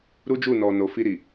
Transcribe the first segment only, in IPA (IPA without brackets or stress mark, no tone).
ɾ